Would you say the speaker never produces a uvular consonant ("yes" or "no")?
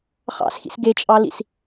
no